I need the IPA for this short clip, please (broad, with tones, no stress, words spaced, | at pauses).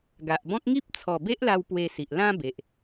ɡa˨ʔbɔ̃˦k̚ ŋi˦p̚t͡sʰɔ˨˩ be˦ʔla˧w pwe˧si˨ʔ lã˦be˨ʔ